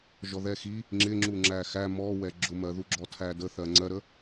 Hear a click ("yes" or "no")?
yes